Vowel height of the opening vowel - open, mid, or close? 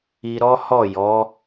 close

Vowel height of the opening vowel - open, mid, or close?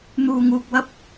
close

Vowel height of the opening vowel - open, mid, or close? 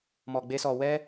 mid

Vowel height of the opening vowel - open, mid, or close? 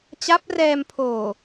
open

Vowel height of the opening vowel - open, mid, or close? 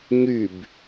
close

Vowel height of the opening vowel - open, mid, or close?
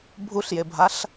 close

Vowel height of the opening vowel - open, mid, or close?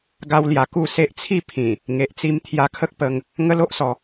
open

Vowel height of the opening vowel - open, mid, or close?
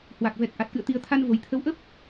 open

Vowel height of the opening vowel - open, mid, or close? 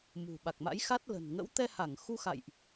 close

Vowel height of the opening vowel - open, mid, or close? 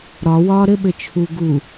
open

